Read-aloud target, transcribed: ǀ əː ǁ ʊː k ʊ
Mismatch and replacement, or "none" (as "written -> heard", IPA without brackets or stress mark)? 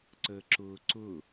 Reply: k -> ǀ